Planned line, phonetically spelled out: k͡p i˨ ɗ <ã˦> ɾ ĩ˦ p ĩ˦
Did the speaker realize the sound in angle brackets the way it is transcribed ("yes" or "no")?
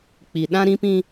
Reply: yes